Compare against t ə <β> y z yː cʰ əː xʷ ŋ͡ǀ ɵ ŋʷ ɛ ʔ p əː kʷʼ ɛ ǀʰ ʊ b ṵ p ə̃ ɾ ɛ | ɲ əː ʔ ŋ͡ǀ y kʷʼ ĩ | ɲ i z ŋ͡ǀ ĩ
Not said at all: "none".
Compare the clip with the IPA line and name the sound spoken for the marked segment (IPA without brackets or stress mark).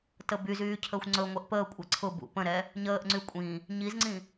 b